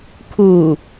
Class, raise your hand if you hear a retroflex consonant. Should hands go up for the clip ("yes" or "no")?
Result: no